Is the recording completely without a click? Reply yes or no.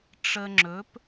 no